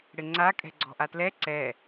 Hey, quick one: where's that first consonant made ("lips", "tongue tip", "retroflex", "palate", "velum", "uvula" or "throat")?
retroflex